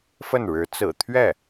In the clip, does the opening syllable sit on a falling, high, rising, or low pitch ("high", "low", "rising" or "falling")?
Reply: falling